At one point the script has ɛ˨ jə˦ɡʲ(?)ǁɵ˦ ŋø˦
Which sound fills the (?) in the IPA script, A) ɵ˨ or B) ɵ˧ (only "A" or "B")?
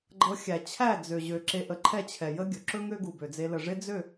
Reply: A